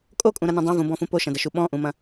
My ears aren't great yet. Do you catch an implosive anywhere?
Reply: yes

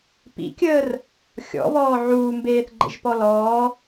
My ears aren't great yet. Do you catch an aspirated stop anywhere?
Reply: no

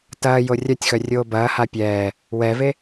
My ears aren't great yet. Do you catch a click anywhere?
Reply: no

